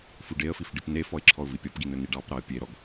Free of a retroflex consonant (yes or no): no